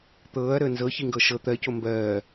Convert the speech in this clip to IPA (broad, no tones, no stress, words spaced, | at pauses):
t̪ɤːɐ̯ɾəː nzɤçiŋɡɤ ʃɤ t̪ɜco mbɜː